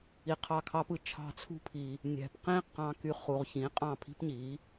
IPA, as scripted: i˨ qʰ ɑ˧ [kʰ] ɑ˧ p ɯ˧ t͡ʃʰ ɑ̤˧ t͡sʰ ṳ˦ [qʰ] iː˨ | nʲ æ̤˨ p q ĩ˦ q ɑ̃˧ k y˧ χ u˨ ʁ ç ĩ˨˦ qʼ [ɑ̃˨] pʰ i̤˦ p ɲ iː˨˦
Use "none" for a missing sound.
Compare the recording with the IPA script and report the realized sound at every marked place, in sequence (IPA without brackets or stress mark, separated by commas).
kʰ, pʰ, ɑ̃˦˨